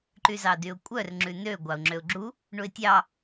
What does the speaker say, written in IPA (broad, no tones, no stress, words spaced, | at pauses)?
ǃyzɑdyʊ̯kʷʼœr ŋ͡ǁʉnø ɡʷɑʊ̯ŋ͡ǁøʊ̯ɡ͡ǁu | ɳuɪ̯tʲɑ